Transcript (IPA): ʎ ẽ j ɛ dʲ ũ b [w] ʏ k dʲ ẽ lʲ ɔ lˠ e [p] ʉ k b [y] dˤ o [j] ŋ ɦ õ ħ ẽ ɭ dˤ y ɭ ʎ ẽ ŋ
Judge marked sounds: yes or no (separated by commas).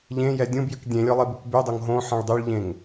no, no, yes, no